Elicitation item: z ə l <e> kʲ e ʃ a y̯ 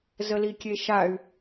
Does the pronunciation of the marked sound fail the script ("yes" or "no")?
yes